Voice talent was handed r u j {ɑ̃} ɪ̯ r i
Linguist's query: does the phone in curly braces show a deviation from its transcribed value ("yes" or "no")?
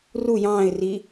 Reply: yes